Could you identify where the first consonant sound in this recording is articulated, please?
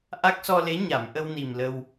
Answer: glottal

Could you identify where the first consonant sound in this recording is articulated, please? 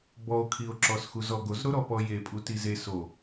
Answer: labial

